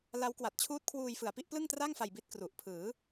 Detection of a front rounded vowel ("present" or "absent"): absent